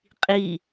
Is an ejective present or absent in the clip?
present